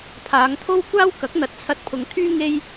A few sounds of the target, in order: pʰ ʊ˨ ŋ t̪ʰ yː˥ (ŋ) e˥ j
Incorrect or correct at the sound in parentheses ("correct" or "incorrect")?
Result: correct